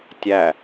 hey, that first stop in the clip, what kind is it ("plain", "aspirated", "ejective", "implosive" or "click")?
plain